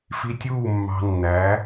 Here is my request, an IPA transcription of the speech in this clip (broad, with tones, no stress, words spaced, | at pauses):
fi˧tʲuː˦˨ mːɑ̤˧nːæ˨˦